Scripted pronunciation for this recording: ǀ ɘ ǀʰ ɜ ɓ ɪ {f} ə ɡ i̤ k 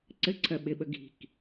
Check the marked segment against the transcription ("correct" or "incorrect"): incorrect